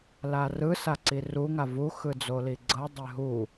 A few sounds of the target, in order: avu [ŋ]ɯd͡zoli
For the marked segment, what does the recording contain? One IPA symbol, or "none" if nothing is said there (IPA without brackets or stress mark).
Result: x